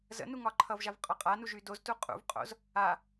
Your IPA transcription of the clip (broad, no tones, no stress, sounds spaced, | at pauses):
z ə̰ n u ŋ ɒ ǃʰ ʌ v ʒ a v qʼ ɒ qʼ a n u ʒ y d o z t u qʼ ṵ v qʼ o̰ z | a